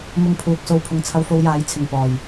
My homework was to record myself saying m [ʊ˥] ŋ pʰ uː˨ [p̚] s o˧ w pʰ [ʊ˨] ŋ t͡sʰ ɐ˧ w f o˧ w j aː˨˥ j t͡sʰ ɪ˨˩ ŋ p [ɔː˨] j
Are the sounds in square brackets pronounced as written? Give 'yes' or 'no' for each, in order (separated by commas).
no, no, yes, no